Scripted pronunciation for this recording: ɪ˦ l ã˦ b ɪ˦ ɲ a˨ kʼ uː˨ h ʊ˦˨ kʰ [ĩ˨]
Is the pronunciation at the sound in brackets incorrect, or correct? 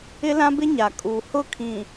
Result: correct